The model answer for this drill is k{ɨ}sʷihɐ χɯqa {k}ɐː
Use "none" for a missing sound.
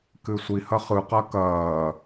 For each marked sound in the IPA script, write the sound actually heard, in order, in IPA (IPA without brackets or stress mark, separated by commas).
ɨ, k